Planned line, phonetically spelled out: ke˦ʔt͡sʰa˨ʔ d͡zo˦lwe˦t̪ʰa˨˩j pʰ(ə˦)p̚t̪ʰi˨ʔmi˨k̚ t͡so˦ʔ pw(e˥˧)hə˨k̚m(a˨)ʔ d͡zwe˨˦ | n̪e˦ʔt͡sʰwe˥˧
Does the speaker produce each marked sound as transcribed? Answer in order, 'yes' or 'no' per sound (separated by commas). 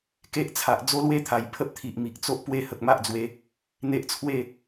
yes, no, no